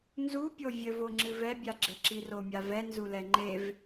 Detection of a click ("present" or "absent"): present